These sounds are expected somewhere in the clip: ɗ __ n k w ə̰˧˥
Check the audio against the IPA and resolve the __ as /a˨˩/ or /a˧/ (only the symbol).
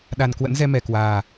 a˨˩